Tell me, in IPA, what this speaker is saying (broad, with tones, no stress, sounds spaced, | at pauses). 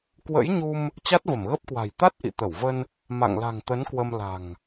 k w ə̰˧˥ j ɲ u˧ m | t͡ɕ a˦˥ t̚ v ə˧˩ m ɣ ə˦˥ p̚ k w a̤˨˩ j t̪ a˦˥ t̚ ʔ ḭ˧˨ t̪ ə˧˩ w v ə˧ n | m a̰˧˨ ŋ l a̤˨˩ ŋ t̪ ə˨˦ n k w ə˧ m l a̤˨˩ ŋ